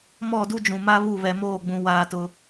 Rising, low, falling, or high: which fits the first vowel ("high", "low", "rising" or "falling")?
falling